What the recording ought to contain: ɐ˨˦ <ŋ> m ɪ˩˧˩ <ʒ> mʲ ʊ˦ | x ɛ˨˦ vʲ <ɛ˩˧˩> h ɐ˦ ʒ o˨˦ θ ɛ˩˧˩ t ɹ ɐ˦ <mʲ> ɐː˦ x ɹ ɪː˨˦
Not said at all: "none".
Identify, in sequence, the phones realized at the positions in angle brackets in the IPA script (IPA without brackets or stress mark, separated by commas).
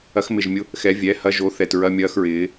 x, ʒ, ɛ˩˧˩, mʲ